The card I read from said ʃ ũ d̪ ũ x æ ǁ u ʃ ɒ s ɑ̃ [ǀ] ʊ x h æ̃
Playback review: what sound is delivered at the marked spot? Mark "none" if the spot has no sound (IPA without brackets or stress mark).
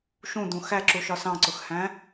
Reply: ǀ